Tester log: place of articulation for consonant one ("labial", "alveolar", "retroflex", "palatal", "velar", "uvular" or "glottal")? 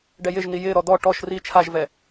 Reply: retroflex